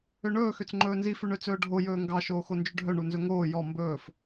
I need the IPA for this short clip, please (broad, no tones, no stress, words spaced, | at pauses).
øɳɵː xøt͡sŋ͡ǃɵːnzi fʉɳøt͡sɵːɖʱo jɵːŋɡɑ ʃoːxond͡ʒʉɖʱœ ɳunzɵŋoː jɔ mbɵːf